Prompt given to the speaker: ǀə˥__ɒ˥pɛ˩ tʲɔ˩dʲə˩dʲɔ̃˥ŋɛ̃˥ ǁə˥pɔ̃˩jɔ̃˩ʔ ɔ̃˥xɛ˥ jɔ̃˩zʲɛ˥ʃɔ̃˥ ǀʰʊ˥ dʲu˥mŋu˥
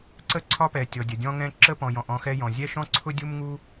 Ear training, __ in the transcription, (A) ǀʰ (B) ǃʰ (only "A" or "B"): A